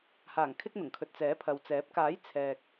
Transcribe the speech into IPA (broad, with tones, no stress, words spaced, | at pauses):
haː˨˩ŋkʰɪ˧k̚ n̪ʊ˨˩ŋkʰɵ˨t̚ t͡sɛː˨˥pʰɐ˨w t͡sɛː˨˥p̚ kaː˨˥j t͡sʰɛː˨k̚